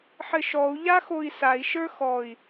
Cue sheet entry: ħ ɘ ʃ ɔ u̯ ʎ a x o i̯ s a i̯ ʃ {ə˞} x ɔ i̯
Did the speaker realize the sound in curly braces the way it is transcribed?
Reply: yes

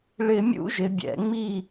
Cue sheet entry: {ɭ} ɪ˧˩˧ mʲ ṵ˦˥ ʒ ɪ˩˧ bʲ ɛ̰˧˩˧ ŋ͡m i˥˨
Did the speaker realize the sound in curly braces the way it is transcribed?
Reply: yes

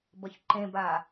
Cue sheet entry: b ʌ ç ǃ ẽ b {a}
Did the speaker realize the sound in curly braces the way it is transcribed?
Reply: yes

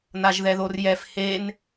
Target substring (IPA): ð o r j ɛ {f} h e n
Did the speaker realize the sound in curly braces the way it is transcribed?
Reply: yes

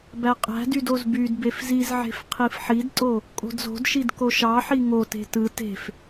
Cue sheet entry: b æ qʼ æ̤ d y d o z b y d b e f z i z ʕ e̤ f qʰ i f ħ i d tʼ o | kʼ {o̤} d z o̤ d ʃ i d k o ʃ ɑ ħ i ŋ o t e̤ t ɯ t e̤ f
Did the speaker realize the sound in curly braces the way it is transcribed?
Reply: yes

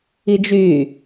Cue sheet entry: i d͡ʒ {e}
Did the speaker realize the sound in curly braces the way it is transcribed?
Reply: no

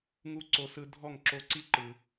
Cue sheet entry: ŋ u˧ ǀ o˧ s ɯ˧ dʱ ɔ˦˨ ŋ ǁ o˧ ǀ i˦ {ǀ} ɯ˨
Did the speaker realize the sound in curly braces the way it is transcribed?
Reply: no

